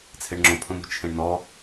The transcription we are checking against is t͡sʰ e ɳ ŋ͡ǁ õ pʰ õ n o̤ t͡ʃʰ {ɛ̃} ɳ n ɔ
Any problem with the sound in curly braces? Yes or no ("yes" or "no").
yes